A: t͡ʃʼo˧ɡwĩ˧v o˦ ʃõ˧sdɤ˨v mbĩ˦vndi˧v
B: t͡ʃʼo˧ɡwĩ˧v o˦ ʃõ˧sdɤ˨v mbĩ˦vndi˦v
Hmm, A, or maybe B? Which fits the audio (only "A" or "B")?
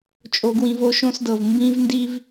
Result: B